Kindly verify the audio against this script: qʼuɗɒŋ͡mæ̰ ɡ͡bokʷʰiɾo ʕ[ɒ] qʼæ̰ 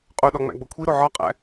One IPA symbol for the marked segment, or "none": ɒ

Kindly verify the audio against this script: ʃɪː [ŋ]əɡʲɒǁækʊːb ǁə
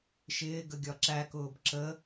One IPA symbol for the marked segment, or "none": ɡ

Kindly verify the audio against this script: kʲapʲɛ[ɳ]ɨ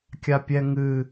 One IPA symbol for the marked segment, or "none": ŋ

